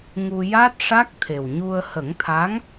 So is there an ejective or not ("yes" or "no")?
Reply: no